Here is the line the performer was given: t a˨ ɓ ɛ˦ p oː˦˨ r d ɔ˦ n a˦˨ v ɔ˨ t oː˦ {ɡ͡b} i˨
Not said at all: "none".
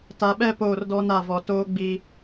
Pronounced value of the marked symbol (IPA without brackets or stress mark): ɡ͡b